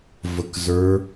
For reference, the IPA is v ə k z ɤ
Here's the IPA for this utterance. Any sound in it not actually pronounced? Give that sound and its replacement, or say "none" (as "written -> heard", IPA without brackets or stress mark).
ɤ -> ə˞